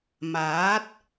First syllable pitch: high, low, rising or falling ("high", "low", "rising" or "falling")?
rising